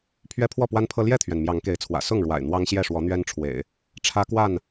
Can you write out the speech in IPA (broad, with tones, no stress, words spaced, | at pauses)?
pʰɥɛ˦pʰwɔ˥˨pwa˦npʰɤ˦ ljɛ˥˨t̪ʰɥɛ˩n mjɑ˨˦ŋke˨˦ɪ̯t͡sʰwä̰˨˩ sʊ˥˨ŋɻwa̰˨˩ɪ̯ n̪wɑ˦ŋɕjɛ˥˨ʂwɔ˨˦n̪ɥɛ˦n ʈ͡ʂʰwḛ˨˩ɪ̯ | ʈ͡ʂʰä˦kwa˥˨n